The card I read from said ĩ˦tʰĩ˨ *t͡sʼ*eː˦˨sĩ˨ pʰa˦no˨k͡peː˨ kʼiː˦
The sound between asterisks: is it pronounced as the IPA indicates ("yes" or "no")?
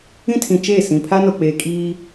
no